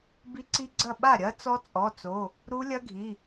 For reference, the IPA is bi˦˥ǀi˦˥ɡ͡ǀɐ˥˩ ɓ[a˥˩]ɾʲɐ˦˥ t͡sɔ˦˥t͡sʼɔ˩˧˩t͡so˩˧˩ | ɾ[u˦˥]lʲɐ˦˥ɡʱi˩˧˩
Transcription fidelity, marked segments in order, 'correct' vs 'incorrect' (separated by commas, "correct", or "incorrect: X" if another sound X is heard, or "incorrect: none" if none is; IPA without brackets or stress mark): correct, correct